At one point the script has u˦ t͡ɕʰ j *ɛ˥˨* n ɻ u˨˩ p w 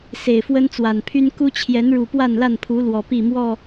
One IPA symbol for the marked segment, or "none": ɛ˨˦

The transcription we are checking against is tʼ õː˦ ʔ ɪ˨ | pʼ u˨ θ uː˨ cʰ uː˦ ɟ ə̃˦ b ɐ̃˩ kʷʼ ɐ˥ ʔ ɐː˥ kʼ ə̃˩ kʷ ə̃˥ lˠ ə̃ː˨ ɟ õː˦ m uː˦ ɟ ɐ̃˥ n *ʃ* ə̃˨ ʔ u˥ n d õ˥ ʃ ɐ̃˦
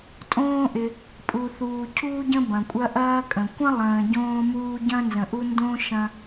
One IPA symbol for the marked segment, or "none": z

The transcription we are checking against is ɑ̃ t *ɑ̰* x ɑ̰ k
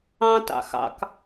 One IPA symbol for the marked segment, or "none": ɑ̰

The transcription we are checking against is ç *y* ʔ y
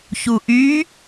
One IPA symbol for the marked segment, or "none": u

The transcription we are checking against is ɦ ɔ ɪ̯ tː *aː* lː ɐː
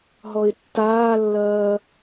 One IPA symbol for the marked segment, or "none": aː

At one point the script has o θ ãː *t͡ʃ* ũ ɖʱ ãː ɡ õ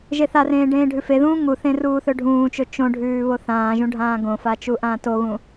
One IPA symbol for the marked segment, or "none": ʒ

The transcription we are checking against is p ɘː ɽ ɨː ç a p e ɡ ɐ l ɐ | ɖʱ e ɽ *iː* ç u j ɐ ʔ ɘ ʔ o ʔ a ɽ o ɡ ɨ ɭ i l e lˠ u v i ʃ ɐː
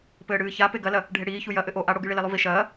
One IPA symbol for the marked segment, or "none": iː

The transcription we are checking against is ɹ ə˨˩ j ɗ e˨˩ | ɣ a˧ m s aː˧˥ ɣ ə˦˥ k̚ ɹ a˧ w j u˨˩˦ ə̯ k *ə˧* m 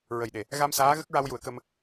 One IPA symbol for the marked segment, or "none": ə˧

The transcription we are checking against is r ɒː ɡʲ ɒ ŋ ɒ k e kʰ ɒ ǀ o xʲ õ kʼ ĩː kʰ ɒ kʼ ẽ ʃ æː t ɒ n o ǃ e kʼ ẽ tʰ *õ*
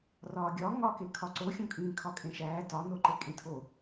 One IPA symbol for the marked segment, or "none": o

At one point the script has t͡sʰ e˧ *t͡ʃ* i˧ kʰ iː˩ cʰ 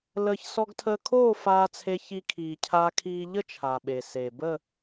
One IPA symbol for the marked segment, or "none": ç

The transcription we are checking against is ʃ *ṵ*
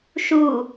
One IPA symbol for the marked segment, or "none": u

